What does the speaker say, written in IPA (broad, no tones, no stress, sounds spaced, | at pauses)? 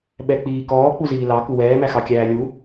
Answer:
ɓ ɛ k͡p iː k ɔː k͡p u z iː l ɑ k u w ɛː m æ x ɑ kʲ æː lʲ u